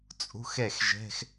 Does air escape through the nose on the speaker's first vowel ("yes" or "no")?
no